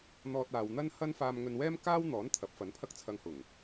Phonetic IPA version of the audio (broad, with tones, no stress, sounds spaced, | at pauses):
n̪ ɔː˧ t̚ aː˨ w n̪ ɐ˥ n h ɐ˥ n f aː˧ m ŋ ɵ˧ n w ɛː˥ m k aː˥ w n̪ ɔː˨˥ n t̪ʰ ɐ˨˥ p̚ f ɐ˨˥ n pʰ ɐ˥ k̚ t͡sʰ ɐ˧ ŋ h ʊ˨˩ ŋ